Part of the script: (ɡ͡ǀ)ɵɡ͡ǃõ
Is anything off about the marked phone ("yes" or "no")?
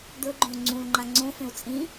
yes